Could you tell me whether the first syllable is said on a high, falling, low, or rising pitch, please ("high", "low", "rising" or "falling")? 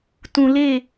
low